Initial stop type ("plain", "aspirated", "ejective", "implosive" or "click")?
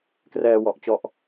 plain